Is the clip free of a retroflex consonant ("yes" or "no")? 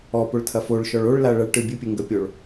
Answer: no